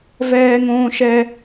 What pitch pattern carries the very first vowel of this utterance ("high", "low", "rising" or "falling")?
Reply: high